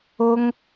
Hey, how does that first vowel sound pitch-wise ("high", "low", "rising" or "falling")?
high